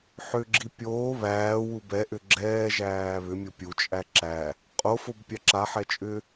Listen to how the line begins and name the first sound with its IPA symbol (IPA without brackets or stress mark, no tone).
ħ